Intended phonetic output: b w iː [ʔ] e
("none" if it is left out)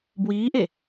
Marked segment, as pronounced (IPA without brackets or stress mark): ʔ